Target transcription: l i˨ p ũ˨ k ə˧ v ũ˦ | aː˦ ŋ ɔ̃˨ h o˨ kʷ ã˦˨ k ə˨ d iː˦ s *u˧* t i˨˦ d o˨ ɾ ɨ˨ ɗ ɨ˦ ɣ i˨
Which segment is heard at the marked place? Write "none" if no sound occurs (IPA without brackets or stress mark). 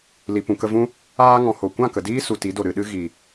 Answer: u˨